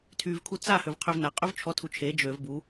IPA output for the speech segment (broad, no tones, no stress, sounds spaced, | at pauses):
tʰ y v kʰ u t͡s a h ø v qʰ ø v n a qʼ ø v t͡ʃʰ ɔ tʰ u t͡ʃʰ e d͡ʒ ø v b u